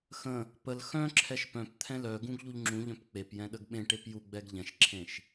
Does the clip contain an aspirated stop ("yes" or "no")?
yes